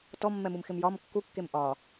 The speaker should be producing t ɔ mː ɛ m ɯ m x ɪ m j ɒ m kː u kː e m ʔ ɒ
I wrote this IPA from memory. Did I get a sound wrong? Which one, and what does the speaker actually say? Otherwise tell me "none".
none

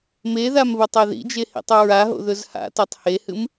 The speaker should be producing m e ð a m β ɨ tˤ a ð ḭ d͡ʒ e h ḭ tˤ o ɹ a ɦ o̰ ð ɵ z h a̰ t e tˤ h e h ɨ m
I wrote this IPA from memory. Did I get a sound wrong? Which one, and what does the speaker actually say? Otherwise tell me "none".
none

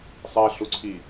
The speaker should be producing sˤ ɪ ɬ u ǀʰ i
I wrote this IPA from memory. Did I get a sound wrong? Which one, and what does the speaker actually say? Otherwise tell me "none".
ɪ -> i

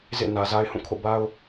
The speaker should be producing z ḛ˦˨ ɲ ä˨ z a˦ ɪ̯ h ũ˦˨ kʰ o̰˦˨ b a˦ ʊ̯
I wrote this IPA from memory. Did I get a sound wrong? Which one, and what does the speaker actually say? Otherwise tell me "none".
ɲ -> n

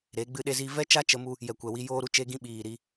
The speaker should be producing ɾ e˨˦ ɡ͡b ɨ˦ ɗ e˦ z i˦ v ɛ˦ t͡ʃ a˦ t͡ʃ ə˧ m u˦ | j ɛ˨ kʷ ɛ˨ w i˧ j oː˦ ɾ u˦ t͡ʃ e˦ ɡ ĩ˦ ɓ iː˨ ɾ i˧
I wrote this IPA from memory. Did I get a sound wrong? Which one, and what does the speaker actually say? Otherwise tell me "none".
none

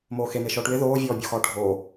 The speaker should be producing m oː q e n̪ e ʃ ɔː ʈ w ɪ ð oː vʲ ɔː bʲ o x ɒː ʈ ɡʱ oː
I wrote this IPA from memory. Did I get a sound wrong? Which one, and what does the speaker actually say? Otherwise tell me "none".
q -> x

